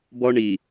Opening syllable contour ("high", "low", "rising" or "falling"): high